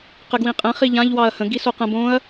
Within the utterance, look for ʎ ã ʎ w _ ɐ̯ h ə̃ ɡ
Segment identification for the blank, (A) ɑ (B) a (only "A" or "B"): A